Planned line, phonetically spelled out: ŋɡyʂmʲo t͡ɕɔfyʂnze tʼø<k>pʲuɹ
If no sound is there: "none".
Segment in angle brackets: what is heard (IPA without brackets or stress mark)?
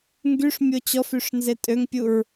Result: ŋ